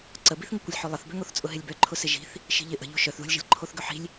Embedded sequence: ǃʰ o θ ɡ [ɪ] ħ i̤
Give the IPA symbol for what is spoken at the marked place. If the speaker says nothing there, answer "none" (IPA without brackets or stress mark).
ʏ